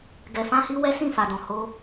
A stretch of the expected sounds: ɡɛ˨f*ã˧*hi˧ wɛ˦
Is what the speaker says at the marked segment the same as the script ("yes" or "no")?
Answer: yes